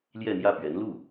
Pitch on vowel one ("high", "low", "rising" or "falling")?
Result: falling